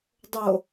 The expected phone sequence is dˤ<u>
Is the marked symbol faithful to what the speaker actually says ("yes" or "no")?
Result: no